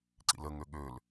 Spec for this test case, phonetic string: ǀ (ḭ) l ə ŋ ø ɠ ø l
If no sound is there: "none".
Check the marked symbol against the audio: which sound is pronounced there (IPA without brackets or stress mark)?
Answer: ḭ